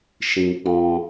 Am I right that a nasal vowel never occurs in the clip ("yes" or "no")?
no